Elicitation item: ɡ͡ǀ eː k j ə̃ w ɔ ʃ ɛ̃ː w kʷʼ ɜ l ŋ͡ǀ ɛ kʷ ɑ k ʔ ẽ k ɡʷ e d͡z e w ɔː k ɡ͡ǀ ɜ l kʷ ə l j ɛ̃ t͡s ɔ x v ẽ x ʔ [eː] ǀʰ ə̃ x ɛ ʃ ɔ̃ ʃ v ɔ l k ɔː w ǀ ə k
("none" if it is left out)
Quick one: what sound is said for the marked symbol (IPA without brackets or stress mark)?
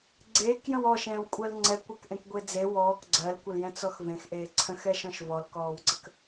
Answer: eː